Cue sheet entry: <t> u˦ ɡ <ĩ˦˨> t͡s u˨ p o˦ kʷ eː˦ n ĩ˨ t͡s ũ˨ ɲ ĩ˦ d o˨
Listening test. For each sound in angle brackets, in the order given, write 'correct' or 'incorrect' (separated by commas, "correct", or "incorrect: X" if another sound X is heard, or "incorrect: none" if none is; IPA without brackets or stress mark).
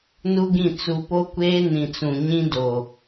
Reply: incorrect: n, correct